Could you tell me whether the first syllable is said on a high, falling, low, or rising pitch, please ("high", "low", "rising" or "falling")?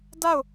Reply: falling